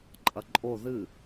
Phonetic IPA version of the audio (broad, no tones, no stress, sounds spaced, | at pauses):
ǃʼ ɐ ǃʼ o ð ɨ